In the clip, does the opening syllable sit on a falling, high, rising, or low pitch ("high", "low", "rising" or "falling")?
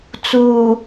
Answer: low